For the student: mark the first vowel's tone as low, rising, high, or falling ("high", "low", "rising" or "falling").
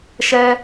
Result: high